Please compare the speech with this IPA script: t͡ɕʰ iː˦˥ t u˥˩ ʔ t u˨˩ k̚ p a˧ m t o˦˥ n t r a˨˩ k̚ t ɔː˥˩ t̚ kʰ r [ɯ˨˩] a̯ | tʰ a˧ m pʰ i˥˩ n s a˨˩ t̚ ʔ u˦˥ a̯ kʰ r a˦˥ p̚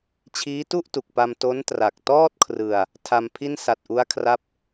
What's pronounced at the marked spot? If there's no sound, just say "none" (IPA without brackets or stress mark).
ɯ˧